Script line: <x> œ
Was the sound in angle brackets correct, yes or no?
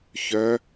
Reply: no